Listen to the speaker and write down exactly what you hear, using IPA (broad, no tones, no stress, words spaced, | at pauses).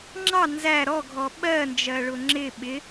ŋ͡ǁɑ nzæ ɾɔɡʱɔ ɓɜnd͡ʒɜɭʊ ŋ͡ǁɪ ɓɪ